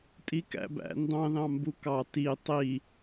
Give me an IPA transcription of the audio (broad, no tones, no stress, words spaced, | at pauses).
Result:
tʼikæ̰bæ̰ ndɑ̃ðɑ̃ mbukɑ ti tˤi